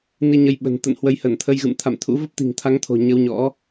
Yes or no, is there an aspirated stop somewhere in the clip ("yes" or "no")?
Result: yes